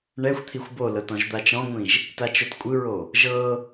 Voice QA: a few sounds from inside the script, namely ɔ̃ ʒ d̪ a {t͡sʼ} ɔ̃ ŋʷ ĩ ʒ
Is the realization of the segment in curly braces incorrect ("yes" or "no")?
yes